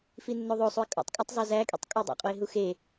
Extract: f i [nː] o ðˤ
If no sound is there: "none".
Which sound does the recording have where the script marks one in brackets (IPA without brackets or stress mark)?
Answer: nː